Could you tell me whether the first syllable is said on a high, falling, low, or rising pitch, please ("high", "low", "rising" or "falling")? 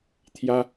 high